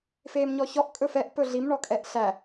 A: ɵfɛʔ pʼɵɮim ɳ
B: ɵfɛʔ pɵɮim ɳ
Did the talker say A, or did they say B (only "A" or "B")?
B